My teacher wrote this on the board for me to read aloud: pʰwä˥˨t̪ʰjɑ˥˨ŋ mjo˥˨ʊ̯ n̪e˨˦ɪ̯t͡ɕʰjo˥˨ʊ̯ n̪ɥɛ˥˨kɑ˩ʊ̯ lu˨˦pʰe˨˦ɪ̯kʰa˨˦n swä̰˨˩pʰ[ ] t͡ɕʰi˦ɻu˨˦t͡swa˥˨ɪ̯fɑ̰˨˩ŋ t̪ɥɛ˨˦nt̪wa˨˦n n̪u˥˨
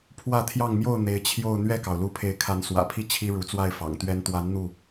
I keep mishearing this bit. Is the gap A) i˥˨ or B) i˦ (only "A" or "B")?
B